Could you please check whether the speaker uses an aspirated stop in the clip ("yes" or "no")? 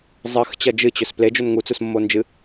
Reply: no